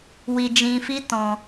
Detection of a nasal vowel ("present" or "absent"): present